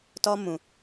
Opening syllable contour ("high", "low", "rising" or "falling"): high